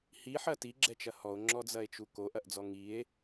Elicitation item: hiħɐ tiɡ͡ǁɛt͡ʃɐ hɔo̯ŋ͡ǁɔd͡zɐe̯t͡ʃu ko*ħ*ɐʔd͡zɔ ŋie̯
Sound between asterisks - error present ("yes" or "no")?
yes